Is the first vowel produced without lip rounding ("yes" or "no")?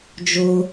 no